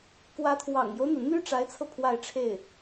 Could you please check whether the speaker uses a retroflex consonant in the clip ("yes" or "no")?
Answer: yes